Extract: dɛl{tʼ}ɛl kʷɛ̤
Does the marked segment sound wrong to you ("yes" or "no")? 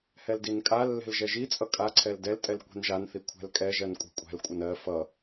no